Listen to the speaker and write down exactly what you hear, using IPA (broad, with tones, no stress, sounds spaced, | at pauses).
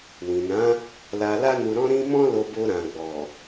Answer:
w ĩ˨ n ã˨˦ | l a˧ l a˦ n u˧ ɾ ɔ̃˦ ɾ ĩ˦ m ɔ̃˦ l o˧ b o˧ ɾ ã˨ ɡ͡b ɔ˨